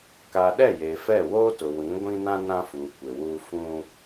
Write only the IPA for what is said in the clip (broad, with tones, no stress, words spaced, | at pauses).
ka˨ɗɛ˦˨ je˨fɛ˦˨ woː˦tʊ˨ wĩ˨˦ ɡʷĩ˦nã˦ nã˦fuː˨ kʷɪ˨wuː˦ fũ˦